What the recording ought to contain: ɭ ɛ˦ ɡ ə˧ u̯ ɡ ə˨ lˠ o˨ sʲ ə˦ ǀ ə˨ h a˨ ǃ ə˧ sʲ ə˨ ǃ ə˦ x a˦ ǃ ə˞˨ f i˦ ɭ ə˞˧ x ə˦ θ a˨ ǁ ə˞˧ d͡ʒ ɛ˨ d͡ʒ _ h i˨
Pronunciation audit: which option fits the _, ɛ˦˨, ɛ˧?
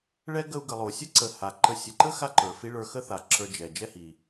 ɛ˦˨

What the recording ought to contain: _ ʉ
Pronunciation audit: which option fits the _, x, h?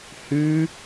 h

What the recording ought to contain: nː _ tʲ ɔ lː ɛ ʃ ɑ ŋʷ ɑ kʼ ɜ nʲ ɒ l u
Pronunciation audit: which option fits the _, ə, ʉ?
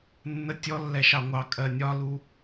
ə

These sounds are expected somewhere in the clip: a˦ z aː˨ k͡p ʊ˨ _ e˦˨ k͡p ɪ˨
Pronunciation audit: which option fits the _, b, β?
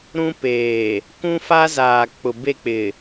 b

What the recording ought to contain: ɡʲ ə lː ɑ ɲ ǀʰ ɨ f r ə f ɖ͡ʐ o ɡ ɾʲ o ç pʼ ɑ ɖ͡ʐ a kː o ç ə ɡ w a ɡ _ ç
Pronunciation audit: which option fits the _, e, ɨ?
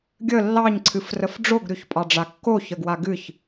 ɨ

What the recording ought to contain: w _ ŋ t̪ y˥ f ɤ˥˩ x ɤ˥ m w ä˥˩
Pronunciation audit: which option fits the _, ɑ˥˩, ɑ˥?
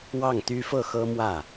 ɑ˥˩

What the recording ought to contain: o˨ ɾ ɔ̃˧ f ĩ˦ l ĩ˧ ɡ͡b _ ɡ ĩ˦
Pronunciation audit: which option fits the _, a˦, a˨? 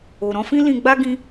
a˦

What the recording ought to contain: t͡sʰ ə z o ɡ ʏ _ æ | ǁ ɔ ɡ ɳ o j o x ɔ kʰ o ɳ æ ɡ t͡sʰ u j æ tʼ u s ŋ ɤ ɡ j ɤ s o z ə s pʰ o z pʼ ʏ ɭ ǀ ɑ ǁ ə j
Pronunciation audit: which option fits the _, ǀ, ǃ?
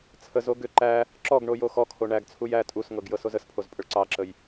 ǃ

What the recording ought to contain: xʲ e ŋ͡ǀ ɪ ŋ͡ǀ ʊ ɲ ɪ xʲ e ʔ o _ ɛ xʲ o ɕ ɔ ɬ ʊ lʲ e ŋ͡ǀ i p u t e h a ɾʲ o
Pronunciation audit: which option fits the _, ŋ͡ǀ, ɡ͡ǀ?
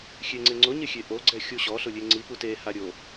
ɡ͡ǀ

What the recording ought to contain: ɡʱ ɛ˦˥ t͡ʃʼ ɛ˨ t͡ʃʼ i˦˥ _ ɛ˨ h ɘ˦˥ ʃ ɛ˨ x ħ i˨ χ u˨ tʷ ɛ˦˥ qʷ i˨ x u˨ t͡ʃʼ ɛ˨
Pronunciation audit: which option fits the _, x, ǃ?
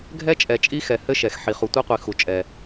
x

